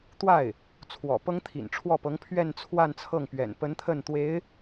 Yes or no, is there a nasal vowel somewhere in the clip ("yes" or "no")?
no